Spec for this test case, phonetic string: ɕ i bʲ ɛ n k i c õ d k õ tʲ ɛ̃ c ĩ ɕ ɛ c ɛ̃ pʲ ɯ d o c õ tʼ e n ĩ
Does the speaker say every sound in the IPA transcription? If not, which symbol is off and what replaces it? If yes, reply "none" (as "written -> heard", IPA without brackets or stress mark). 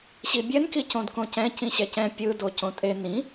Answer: tʲ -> c